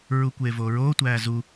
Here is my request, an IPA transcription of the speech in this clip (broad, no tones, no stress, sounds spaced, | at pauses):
ɹ u kʷ eː v oː ɹ oː tʷ æː z u